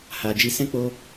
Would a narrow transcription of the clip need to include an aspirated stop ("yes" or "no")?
no